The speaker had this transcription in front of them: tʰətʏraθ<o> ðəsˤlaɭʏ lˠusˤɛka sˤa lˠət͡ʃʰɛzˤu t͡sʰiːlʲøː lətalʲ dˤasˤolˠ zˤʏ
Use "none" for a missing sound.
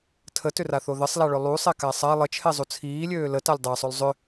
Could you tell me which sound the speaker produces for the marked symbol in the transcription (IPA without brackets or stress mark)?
o